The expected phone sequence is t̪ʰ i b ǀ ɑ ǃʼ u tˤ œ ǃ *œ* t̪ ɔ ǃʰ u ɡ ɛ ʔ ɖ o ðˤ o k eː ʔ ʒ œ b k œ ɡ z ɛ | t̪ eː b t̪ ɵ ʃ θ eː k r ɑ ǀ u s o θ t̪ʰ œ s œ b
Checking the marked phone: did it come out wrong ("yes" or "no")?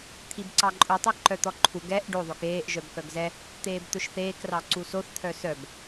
no